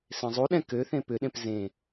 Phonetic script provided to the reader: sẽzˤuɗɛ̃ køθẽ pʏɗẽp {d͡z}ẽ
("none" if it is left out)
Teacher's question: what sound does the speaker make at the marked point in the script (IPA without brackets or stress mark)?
z